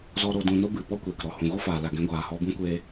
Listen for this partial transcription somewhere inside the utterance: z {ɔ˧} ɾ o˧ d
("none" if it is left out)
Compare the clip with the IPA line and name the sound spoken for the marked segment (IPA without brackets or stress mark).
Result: ɔ˧